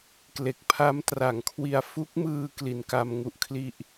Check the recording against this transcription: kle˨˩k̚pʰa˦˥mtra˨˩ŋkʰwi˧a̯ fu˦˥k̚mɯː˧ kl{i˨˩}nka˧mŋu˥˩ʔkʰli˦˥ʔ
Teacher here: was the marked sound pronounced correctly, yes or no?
yes